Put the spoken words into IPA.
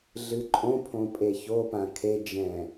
ɮ ɨ ǃʼ õ pʰ õ pʼ e ç o p ã kʰ e d͡ʒ ɛ̃

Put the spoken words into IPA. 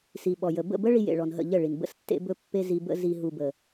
s i˨ ɓ ɔ˨ j ə˨ b ə̰˦˨ b ə˦ ɭ i˦ j ḛ˨ ɭ ɔ˨ n ɦ ə̰˦˨ ʎ ə˦˨ ɭ i˨ n b ə̰˦ s tː ḛ˦ b ɵ˦ pː e˦ z i˦ b ə̰˦ z i˦ ɦ u˦ b ə˦

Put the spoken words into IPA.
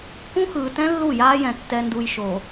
k ũ˦ x ɯː˨ t ɛ̃˦ lː u˦˨ j aː˦ j ɛ̃˨ tː ɛ˨ n d u˨ j ʃ o˨

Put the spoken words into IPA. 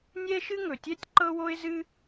nʲ ɛ˥ ʃ ɨ˥ ŋ ɵ˩ tʲ ɛ˥ tʲ ǃ ɤ˥ w o˥ ɪ̯ z ɨ˥

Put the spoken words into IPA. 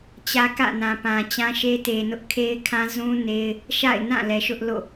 t͡ɕ ä˦ k ä̰˦˨ n ã˨ p ã˨ t͡ɕ ã˦ ʃ e˦ t e˨ n ʊ˦ ʔ kʰ e˦ ɪ̯ kʰ ã˦ z ũ˦ n e˦ ɪ̯ | ʃ a̰˦˨ ɪ̯ n ã˦˨ l ɛ˨ ʃ ʊ˦ ʔ l o̰˦˨

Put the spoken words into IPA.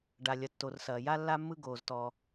ɖ a˩ lʲ ɐ˩ tː o˩ r s ɐː˩ j a˥ lː a˥ mː ɯ˥ ɡ oː˩ z t ɔː˩

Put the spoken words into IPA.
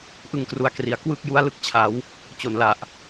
ʔ ɯ˧ ŋ k r u˨˩ a̯ k r i˩˦ a̯ k w ɯ˥˩ k̚ j u˦˥ a̯ l ɯ˦˥ k̚ t͡ɕʰ a˩˦ w | t͡ɕ o˨˩ n l a˨˩ ʔ

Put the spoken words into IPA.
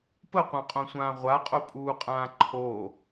p ə qʷ ã qʼ õ sʷ ãː ʁʷ a qʼ o pʼ uː qʼ ãː ǃʰ o

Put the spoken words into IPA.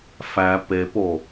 f æ p e p o

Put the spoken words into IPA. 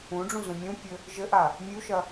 ũ ɖ͡ʐ ũ z ũ mʲ ũ pʲ ɘ | ʒ ɘ ʔ a | mʲ u ʃ ɐ

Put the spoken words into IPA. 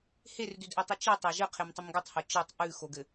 h e r d ʉ d ʔ ɘ tˤ ʉ t͡ʃ i tˤ a ʒ ɘ qʰ e m tˤ ɘ m ɡ o tˤ h o t͡ʃ ɘ tˤ ʔ ʉ x o ɡ ɘ

